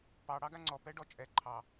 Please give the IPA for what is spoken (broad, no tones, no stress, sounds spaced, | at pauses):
p ɑ ɽ ɑ ɡ a ŋ͡ǀ ɔ p ɛ ɖ ɔ t͡ʃʼ ɛ ǃʰ ɑ